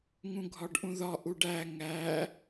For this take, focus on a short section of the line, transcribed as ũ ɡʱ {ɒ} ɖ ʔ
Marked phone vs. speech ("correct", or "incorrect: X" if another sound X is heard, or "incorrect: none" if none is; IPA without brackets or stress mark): correct